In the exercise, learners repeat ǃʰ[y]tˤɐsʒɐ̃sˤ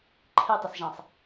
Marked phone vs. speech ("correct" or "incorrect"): incorrect